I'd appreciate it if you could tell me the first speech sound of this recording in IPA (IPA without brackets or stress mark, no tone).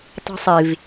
tˤ